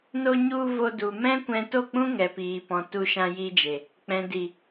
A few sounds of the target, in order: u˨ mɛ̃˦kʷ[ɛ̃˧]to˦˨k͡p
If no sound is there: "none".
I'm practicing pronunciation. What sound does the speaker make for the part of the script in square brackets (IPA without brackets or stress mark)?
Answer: ɛ̃˧